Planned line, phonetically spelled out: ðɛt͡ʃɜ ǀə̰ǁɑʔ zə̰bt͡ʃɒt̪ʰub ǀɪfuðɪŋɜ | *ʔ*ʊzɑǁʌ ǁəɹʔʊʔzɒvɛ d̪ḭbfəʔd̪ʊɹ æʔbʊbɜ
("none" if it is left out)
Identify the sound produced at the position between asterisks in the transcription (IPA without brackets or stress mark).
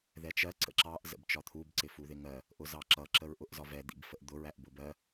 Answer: ʔ